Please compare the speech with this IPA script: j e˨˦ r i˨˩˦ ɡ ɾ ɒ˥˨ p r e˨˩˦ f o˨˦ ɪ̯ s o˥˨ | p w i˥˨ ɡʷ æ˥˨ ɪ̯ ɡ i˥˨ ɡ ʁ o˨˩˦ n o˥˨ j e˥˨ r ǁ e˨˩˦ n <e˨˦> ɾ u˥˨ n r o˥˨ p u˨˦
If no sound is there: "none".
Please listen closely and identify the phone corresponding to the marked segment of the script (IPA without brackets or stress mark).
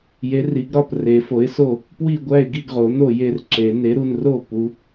e˨˦